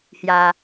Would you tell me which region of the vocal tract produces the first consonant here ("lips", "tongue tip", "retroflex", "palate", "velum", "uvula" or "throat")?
throat